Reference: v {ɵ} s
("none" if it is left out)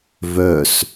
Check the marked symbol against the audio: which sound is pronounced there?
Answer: œ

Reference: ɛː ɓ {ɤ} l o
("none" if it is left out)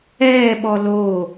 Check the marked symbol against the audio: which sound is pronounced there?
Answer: ɔ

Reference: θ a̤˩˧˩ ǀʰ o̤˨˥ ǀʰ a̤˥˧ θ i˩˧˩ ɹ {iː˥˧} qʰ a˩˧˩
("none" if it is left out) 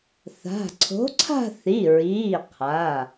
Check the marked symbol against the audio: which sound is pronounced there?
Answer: iː˩˧˩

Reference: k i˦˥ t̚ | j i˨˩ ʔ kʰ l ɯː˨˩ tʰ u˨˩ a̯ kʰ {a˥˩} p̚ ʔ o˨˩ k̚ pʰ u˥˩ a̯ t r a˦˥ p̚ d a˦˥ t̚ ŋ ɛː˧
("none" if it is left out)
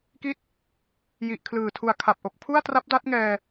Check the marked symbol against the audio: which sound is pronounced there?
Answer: a˨˩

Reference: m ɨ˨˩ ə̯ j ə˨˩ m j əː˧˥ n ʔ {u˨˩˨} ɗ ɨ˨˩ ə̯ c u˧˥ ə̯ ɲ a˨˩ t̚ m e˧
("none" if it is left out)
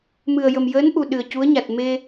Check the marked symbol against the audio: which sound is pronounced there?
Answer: u˨˩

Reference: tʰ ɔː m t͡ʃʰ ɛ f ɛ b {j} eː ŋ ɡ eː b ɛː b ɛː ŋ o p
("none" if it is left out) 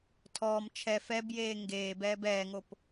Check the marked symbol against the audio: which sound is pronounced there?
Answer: j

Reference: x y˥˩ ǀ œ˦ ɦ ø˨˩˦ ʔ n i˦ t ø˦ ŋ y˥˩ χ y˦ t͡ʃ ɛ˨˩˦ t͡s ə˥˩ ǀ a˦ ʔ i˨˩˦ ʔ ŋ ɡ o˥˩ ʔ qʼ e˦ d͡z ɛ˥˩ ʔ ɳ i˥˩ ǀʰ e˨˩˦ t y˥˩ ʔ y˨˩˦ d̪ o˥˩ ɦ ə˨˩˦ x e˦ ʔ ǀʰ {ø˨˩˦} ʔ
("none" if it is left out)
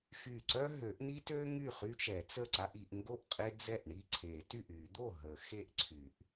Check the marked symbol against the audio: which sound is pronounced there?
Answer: y˨˩˦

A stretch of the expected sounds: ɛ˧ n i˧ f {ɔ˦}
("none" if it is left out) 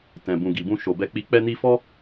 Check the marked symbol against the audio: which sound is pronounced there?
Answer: ɔ˦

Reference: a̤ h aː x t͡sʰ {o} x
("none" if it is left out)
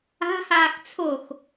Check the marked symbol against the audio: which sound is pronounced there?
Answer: o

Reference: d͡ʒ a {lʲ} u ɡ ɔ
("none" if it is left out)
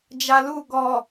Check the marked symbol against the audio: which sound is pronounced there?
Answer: l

